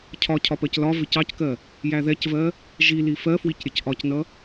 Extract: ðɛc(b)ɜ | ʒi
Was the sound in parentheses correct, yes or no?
no